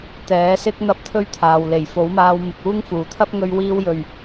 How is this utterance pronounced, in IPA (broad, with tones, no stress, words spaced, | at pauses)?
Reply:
t̪ɛː˨˥sɪ˥k̚ n̪ɐ˥p̚t̪ʰɵ˥ɥt̪ʰaː˨w le˨˩jfo˨˥wmaː˧w mɪ˨k̚uː˥ŋ fuː˨˩t̪ʰɐ˥p̚ ŋɵ˧ɥwiː˧wjɵ˨˩ɥ